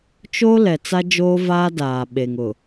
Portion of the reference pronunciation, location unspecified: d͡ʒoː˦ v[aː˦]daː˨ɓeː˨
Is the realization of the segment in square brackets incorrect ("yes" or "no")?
no